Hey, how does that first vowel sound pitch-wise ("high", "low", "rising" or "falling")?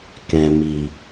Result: low